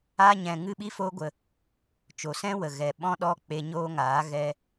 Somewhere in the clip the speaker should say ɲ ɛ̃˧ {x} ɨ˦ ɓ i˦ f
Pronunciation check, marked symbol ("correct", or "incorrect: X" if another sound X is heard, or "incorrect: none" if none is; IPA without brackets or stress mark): incorrect: ŋ